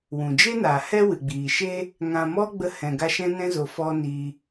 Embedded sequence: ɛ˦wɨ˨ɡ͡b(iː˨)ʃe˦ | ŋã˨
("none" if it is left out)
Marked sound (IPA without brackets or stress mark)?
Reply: iː˨